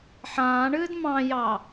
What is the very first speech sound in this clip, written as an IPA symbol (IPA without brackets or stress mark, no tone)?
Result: ħ